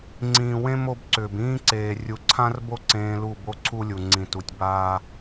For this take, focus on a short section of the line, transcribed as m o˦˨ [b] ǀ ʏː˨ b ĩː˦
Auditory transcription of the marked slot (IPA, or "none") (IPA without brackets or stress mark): b